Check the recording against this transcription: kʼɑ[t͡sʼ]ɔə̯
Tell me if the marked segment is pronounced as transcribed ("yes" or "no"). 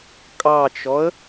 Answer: no